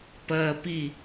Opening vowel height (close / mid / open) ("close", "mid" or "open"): open